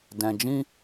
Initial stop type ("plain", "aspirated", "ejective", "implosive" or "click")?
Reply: plain